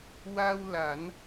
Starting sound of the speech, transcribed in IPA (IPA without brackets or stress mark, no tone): w